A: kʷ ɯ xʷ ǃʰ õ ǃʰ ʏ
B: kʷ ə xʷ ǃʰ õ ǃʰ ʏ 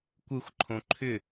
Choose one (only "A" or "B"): A